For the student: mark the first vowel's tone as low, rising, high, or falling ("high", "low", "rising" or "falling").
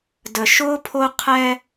low